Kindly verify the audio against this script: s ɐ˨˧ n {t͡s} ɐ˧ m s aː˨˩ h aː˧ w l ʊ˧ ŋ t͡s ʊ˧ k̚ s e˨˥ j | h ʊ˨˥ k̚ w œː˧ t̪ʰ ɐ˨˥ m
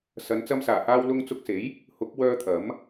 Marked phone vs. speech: correct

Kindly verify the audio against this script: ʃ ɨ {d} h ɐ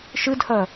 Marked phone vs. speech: correct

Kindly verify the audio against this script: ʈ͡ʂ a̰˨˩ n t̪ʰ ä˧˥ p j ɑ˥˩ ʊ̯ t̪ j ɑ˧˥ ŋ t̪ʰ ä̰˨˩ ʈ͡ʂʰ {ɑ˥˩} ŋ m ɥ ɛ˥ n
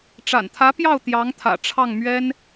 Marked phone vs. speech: correct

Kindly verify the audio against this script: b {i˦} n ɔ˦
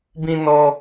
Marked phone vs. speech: incorrect: ĩ˦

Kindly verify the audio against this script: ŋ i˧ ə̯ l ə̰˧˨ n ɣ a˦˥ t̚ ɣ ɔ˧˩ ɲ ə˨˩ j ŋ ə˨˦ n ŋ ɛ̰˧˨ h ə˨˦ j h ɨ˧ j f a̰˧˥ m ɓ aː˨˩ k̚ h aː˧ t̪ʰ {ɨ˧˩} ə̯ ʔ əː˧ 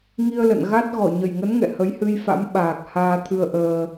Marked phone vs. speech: incorrect: ɨ˧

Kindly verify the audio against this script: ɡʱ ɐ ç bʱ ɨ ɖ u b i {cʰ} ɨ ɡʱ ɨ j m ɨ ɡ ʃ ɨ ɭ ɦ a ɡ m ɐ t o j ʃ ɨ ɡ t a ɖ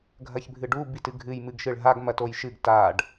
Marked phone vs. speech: incorrect: t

